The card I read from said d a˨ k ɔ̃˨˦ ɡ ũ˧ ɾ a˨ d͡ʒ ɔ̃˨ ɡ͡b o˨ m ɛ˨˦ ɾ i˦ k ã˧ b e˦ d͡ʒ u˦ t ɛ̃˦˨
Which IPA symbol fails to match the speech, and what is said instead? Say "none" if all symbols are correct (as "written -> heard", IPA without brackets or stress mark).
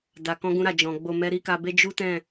ã˧ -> a˧